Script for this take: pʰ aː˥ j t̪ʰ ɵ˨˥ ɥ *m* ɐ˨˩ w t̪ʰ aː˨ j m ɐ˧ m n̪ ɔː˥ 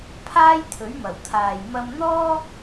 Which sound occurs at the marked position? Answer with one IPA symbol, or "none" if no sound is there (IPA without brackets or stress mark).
m